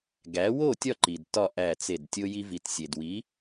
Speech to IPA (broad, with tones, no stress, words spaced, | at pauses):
ɡæ˩˥wo˥˩ tʲɒ˥˩ǃi˩d tɒ˥˩ ʔæ˥˩t͡se˥˩d tʲo˧ji˧vi˩tsʲe˩d wi˩˥